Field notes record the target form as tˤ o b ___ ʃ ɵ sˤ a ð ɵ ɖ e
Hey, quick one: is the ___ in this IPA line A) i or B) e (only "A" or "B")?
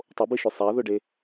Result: A